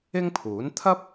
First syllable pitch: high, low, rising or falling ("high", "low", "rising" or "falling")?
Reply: high